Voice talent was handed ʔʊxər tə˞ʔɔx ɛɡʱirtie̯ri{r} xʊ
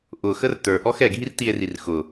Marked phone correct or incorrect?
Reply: correct